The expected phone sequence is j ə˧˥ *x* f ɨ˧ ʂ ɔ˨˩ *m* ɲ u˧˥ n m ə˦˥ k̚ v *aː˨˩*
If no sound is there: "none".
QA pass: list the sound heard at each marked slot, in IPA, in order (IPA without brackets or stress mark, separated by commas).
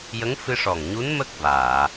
ŋ, ŋ, aː˨˩˨